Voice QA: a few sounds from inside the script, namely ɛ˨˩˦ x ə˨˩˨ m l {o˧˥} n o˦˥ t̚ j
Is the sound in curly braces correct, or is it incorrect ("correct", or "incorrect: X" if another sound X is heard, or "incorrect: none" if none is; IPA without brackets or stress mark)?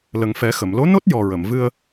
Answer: correct